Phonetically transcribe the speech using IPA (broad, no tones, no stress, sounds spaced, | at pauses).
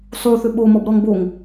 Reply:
sˤ u θ ʏ ɓ o m ɔ b ɾ ɔ ŋ b o ŋ